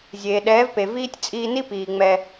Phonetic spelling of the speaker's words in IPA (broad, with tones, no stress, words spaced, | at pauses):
zʲeː˨ɗɛː˨˦vpe˨ viː˦tʲ t͡sʼiː˧ni˦piː˨ ŋ͡mɛ˧